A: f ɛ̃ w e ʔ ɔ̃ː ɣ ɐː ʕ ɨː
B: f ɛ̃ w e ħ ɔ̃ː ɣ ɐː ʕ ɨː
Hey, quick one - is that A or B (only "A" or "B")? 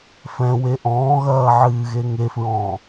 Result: A